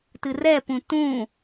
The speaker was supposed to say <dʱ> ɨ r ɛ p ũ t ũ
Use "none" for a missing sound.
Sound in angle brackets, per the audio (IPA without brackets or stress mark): t